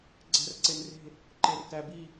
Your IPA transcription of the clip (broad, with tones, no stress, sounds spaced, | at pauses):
ɡ͡ǀ æ̤˧˩ r ǀ e˩ n r e̤˧˩ | ǃ e˩ r t æ˩ b i˧˩